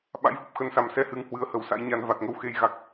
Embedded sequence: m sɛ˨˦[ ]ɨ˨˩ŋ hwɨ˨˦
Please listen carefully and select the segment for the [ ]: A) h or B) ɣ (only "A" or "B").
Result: A